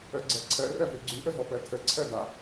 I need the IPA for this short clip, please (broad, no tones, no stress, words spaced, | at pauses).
œɡ͡ǀɜǀʰɜ rɜvøɡ͡ǀʉ ʔəɦɔpɜtʰə ǀʰɜda